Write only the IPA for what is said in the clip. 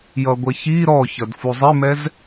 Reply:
j ʌ ɡʷ ɛ ç i ɾ ɔ ç ʌ d f u zˤ ɪ m ɛ z

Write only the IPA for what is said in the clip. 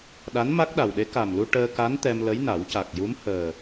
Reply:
ɗ a˧˥ n m a˦˥ k̚ ɗ a˨˩ w ɗ e˧˥ k a˨˩ m l u˧ ʈ əː˧ k a˧˥ n t̪ ɛ˧ m l ə˧˥ j n a˨˩˦ w c a˨˩ k̚ j u˧˥ m h əː˨˩

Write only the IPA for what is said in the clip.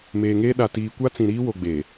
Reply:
m eː˨ ŋ eː˦ ɗ a˨ t iː˨ kʷ a˦ t͡s ĩ˨ ɾ iː˦ w o˨ ɡ͡b eː˨

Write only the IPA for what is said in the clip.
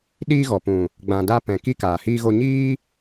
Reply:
ɗ iː˧ ɣ ɔ˨ p ũ˨ | ɡ͡b ã˨ d a˧ p ɛ̃˨ k i˦ k aː˨ h iː˦ ɣ o˦ ɲ iː˦

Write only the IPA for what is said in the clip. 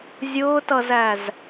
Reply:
zʲ ʊː t ʌ z æ z

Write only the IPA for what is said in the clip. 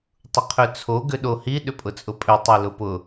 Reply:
tˤ ʊ qʰ ø t͡sʰ o ɡ ʏ ɗ o h i ɗ ʏ pʼ ʊ t͡sʼ ʊ pʼ ø tˤ i l ʊ p ʊ

